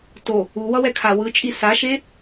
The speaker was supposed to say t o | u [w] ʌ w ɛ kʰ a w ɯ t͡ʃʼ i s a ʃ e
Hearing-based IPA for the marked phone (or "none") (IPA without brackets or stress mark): w